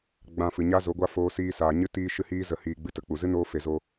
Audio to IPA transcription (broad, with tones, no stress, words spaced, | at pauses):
ɡ͡bã˧ fɨ˨ɲa˦zo˨˦ ɡʷa˦ foː˧siː˧ saː˨ɲɨ˦ tiː˦ʃɨ˦hiː˦ zə˨hiː˨ ɡ͡bɨ˧tə˨k͡pu˨ zɨ˦noː˧ fe˨zo˧